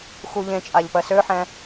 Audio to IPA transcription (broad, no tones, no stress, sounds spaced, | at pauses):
x u ʎ ẽ t͡ʃʼ a ʎ p ɜ s ø ħ ɛ̃